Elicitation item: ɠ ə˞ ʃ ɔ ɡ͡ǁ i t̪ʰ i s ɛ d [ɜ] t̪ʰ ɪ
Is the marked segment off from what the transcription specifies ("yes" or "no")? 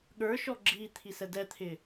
yes